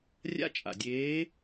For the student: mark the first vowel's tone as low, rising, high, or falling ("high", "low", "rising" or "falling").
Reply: high